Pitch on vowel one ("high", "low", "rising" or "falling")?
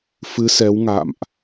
rising